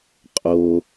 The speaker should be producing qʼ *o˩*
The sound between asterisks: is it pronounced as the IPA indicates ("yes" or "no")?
yes